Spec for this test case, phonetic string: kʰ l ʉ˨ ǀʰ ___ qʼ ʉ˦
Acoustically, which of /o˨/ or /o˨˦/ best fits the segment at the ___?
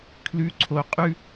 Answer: o˨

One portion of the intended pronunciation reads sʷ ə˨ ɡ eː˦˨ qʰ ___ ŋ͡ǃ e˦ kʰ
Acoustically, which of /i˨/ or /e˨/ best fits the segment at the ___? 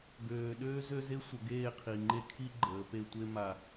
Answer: i˨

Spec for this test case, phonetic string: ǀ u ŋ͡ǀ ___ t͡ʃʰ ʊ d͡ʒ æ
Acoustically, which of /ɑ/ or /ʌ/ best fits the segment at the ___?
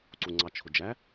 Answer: ɑ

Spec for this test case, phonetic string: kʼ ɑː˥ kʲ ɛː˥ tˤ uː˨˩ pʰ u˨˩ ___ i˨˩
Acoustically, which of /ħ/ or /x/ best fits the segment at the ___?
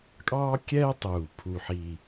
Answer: ħ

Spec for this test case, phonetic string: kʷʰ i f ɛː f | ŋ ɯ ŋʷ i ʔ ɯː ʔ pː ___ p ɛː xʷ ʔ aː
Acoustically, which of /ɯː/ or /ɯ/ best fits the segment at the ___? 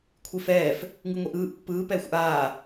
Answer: ɯː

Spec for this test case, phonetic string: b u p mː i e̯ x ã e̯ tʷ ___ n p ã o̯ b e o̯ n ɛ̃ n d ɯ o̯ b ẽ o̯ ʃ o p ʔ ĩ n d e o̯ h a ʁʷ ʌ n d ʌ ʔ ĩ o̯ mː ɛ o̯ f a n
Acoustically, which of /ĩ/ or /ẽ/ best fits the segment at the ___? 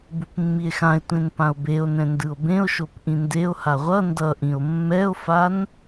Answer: ẽ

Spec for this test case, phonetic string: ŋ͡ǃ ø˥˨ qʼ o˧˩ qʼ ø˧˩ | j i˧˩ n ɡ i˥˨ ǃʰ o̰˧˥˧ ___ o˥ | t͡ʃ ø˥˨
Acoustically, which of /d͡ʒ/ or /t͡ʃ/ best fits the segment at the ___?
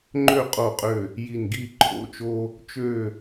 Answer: t͡ʃ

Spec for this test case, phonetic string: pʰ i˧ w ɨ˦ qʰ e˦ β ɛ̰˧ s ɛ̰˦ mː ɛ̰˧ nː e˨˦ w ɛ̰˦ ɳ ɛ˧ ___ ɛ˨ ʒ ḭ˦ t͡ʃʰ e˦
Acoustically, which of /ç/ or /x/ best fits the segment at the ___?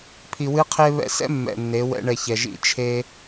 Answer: ç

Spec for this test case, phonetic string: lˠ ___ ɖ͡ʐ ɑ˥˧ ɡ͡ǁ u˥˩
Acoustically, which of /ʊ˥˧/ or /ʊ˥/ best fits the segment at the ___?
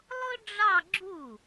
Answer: ʊ˥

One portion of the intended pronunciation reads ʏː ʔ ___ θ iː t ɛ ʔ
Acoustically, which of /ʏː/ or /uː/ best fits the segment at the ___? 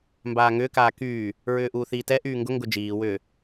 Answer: uː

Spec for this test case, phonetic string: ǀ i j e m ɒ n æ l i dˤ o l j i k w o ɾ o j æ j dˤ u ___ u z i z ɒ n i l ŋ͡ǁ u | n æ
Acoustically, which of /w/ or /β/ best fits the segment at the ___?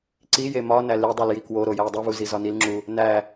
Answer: β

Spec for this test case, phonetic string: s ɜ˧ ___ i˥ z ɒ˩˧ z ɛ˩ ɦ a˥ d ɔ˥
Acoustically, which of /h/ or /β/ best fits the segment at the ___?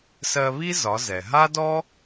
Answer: β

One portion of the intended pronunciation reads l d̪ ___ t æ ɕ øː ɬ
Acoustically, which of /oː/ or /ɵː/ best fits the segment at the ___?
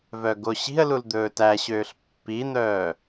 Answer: ɵː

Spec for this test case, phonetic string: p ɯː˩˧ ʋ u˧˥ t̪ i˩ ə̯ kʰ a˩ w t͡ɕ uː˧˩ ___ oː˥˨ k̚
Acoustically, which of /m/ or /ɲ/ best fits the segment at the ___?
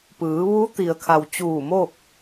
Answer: m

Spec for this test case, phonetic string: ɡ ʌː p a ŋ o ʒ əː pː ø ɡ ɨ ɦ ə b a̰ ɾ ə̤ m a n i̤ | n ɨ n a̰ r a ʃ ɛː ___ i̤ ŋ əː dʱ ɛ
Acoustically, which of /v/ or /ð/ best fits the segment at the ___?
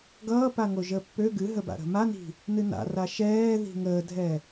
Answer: ð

